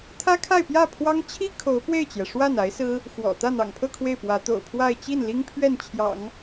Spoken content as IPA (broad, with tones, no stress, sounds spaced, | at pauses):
t̪ʰ ä˥ kʰ a˥˧ ɪ̯ p j ä˥˩ pʰ w ɑ˥ ŋ t͡ɕʰ i˥ kʰ o˧˥ ʊ̯ p w e˥˩ ɪ̯ t͡ɕ j ɛ˩ ʂ w a˥˩ n a˧˥ ɪ̯ s ɹ̩˥ | x w ɔ̰˨˩ t̪ ä˥˩ n̪ ɑ̰˨˩ ŋ pʰ ɤ˥˧ kʰ w e˥˩ ɪ̯ p w ä˧˥ t̪ o̰˨˩ ʊ̯ pʰ w a˥˧ ɪ̯ t͡ɕ i˥˩ n l i˥ ŋ pʰ ɥ ɛ˥˩ n t͡ɕʰ j ɑ̰˨˩˦ ŋ